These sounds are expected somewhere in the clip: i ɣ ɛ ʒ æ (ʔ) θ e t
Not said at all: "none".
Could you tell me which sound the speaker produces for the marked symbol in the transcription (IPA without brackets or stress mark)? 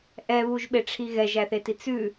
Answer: none